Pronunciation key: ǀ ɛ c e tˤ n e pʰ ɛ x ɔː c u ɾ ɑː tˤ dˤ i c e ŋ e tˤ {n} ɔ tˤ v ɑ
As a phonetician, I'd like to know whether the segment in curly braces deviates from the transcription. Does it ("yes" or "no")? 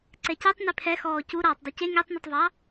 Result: no